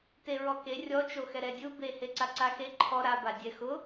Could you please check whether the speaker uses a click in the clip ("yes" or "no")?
yes